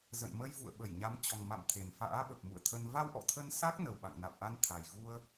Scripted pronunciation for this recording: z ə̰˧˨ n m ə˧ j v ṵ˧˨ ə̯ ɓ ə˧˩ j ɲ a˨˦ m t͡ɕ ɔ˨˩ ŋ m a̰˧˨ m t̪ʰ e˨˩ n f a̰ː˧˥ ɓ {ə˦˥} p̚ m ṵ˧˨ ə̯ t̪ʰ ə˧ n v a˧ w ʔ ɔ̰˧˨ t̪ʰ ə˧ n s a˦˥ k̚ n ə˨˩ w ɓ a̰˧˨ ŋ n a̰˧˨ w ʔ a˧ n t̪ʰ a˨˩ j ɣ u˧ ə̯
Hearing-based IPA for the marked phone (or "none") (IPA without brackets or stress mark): ə˨˩